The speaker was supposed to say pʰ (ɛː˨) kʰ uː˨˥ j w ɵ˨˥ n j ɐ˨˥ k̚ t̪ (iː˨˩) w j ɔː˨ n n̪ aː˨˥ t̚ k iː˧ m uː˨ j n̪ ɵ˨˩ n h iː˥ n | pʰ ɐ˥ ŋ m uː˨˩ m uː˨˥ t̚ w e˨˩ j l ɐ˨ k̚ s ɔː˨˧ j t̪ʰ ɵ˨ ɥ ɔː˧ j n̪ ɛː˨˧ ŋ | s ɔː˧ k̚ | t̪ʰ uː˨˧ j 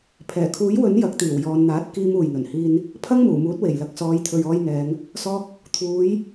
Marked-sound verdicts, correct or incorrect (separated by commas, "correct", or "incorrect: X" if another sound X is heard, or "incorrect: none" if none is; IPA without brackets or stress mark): incorrect: ɛː˨˩, correct